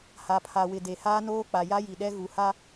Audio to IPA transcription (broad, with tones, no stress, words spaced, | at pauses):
ha˨pʰa˨wɪ˨ de˨haː˦noː˦k͡pa˨ ja˦ji˨ɗɛ˦ ɣu˨ha˦